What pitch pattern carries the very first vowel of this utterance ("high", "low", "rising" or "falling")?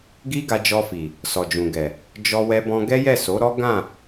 high